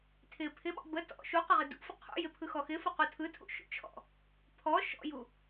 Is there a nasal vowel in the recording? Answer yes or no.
no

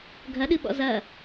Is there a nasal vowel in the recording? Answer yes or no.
no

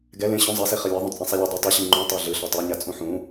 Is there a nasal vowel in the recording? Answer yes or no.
yes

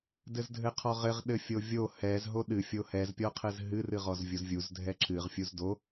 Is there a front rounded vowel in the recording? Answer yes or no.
no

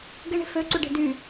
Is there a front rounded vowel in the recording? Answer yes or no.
yes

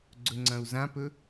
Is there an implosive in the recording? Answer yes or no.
no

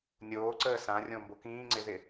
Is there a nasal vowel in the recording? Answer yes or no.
yes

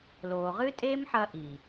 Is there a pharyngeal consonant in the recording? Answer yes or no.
yes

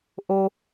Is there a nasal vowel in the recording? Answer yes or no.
no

